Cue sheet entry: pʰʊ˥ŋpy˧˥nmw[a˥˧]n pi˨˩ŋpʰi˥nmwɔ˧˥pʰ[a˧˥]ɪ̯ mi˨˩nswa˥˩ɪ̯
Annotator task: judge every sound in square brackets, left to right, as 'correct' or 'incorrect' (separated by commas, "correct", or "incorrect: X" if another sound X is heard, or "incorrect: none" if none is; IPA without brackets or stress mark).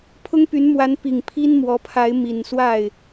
incorrect: a˧˥, correct